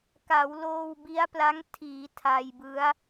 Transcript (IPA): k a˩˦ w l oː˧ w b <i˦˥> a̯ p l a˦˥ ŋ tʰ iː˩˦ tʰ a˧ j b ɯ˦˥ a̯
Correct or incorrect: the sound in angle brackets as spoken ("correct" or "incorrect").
correct